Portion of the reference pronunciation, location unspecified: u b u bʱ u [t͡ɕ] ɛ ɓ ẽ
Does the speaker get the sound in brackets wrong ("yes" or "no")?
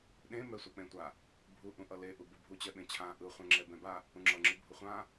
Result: no